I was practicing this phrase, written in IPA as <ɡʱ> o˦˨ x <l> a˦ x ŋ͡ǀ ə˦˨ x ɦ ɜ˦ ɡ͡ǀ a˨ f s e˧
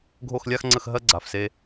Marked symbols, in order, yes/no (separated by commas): yes, no